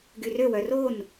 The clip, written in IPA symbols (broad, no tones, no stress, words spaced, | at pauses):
ɡyrøwœ ron